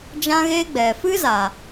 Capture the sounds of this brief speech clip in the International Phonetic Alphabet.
d͡ʒ ã˦ ɣ eː˦ ɡ͡b ɛ˨ f ɨ˦ z a˨

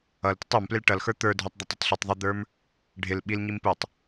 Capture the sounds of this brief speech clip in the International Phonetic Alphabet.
ʌ l t ɪ tˤ ə˞ m p l ɪ l ʈ ʌ l x ə˞ t̪ ə˞ dʱ ə˞ tˤ d̪ ɔ tˤ ɪ tˤ ɬ i tˤ ðˤ ɪ d̪ ə˞ m | ɖʱ ɪ l ɓ i l ɲ i m p u tˤ

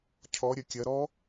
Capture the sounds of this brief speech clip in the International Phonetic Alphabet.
cʰ ɔ ɾʲ ɐ kʲ ɐ ɾ ɔ

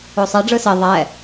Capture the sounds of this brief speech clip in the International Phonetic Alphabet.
o sˤ ɛ ɖ͡ʐ ɯ s e ðˤ ɛ

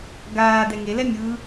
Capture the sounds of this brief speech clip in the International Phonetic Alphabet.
ɡ aː d ɛ ŋ e l ɛ mʲ ɯ

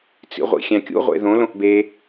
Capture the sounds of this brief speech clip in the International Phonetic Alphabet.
t͡s ḭ ʁʷ ḭ xʲ æ̃ kʲ ṵ ʁʷ ḛ ð õ l õ ʔ b e

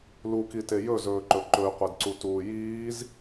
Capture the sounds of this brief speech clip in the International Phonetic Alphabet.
l u k i t e j ɵ z ɵː ǃ ɵ ǃ ɵ y̯ qʷ e d ǀ u t uː j iː z

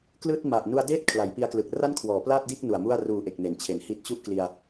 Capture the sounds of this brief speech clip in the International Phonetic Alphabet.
k l ɯː˥˩ t̚ m a˨˩ ʔ n u˧ a̯ d eː˦˥ t̚ kʰ l a˩˦ j p i˧ a̯ k l ɯ˨˩ k̚ r a˥˩ n kʰ w ɔː˩˦ p l aː˥˩ t̚ d iː˥˩ k̚ n u˨˩ a̯ m u˥˩ a̯ r uː˨˩ ʔ e˨˩ k̚ n e˩˦ n t͡ɕʰ e˩˦ n h i˦˥ t̚ t͡ɕ u˥˩ ʔ k l i˧ a̯

